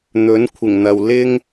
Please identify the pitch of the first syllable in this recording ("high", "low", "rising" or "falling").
rising